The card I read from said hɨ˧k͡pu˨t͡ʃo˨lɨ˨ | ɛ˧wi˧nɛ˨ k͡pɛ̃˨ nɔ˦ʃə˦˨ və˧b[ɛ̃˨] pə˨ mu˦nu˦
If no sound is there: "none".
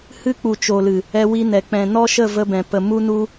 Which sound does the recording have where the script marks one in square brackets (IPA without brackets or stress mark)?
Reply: ɛ̃˨